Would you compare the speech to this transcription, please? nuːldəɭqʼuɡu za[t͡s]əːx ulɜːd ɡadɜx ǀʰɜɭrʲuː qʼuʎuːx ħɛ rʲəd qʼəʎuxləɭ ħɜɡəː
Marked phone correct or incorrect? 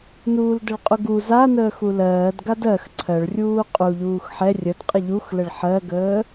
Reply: incorrect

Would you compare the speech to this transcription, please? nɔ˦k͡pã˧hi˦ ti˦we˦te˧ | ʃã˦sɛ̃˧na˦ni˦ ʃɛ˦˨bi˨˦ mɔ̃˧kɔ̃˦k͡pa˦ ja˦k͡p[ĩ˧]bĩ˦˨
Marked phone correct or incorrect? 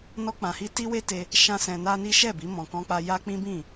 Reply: incorrect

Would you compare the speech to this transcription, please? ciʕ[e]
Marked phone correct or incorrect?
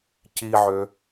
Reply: incorrect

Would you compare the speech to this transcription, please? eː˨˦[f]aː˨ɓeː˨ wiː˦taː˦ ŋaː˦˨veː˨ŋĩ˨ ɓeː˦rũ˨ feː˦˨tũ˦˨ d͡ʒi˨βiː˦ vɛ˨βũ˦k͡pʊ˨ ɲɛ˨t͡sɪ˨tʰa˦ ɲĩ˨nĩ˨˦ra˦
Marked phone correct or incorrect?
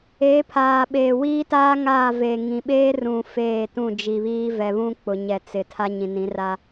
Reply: incorrect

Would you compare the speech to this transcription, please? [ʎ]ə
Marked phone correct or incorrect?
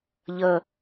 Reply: correct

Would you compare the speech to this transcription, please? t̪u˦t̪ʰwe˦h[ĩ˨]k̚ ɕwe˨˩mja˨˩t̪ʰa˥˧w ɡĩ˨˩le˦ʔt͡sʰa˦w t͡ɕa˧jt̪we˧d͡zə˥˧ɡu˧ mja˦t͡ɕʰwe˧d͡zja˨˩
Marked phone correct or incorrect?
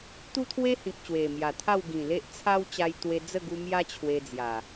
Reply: correct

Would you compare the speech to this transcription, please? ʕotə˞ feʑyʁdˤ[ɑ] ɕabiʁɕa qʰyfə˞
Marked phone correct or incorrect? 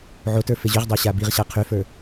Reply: correct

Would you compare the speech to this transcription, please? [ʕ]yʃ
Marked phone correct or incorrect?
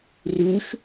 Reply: incorrect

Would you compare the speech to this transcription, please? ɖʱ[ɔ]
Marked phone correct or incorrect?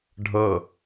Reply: incorrect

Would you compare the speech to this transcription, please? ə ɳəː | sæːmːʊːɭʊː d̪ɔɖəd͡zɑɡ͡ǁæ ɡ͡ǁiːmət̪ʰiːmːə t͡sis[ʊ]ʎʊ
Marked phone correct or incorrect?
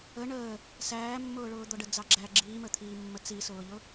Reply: incorrect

